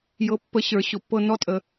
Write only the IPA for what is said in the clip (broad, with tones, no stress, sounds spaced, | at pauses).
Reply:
j ɤ˨˦ pː ə˨˦ ɕ ə˞˨˦ ɕ ʊ˨˦ pː ɤ˦ n ɔ˦ tʼ ə˨